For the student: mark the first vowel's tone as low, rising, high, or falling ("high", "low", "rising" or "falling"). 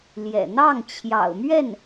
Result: low